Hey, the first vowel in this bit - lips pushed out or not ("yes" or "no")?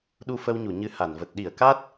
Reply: yes